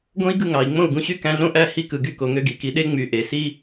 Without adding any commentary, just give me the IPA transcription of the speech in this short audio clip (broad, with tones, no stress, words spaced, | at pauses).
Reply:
ɡõ˥i̯ɡɯ˥˩ ŋɑ˩i̯ŋ͡mõ˥˩u̯ɡũ˧ɕy˥ kæ̃˧ɮõ˥˩ʔæ˥˩ hi˧kɯ˩ɡy˧ ko˩ŋø˧ɡi˩ki˩˥ ɗe˥ŋ͡my˩˥ ʔe˩si˥